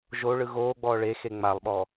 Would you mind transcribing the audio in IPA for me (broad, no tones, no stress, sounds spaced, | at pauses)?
ʒ o ɭ ɯ ɣ oː ɡ͡b ɔː ɭ e x e ŋ͡m a lˠ ɓ ɔ